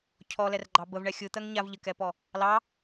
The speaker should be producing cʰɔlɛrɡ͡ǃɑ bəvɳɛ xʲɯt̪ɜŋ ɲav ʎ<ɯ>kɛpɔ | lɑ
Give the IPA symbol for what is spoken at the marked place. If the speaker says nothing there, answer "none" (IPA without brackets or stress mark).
ə